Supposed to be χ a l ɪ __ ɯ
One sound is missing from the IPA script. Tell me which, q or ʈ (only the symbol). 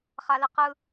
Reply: q